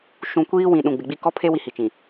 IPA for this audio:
ʃ ũ˨ kʷ iː˦ w ĩ˨ ɗ ũ˨ ɡ͡b ɪ˨ ɡ͡b i˦ k ɔ˦ pʰ e˦ w i˦ h i˨ t͡ʃ ĩ˨

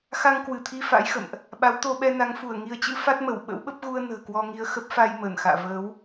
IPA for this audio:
x a˧ ŋ k w ɨ˧˩ t̪ʰ i˧ f a̰˧˥ j x ə̰˧˨ m ʔ | ɓ a˨˦ w t̪ o˧ ɓ ɛ˧ n a˨˦ ŋ f u˧˩ ə̯ ŋ i˨˦ ə̯ t͡ɕ ɨ̰˧˥ f a˦˥ t̚ m ə˧˩ w ɓ ə̰˧˥ w ɓ ə˦˥ p̚ ɣ u˧ ə̯ n ə̤ː˨˩ k w ɔ˧ ŋ i˧ ə̯ x ə˦˥ p̚ f a˧ j m əː˧˩ n x a̰ː˧˨ v əː˨˦ w

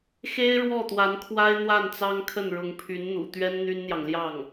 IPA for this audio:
x e˥ ɪ̯ ɻ w ɔ˥˩ t̪ w a˧˥ n kʰ w a˥ ɪ̯ n̪ w a˥˩ n t͡s ɑ˥ ŋ kʰ ə˥˩ n ɻ ʊ˧˥ ŋ pʰ y˧˥ n n̪ ṵ˨˩ t̪ ɥ ɛ˥ n n̪ y˥ n n̪ j ɑ˨ ŋ l j ɑ˥˩ ŋ

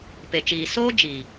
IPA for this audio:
p e˨ t͡ʃ iː˨ s oː˦ d͡ʒ iː˨

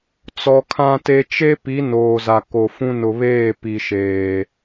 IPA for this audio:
t͡s ɔ˨ kʰ ã˦ t e˦ t͡ʃ e˦ p i˨˦ n oː˨ z a˨ k o˨ f ũ˦ n ʊ˨ β eː˦˨ p i˨ ʃ eː˨

